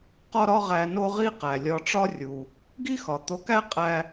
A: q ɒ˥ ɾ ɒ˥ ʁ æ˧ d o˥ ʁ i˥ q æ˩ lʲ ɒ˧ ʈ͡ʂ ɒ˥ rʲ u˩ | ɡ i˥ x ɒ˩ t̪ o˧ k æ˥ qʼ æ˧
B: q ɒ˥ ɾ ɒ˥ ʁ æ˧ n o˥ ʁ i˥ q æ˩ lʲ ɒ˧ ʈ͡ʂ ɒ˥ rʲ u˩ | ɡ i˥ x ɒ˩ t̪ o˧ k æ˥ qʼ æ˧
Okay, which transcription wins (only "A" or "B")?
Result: B